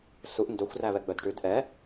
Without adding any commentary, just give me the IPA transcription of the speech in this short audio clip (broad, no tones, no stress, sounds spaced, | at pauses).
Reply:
s u ʔ n d ɵ xʷ r æ β ɛ ɡ͡b œ d ʈ ʉ d ʔ ɛ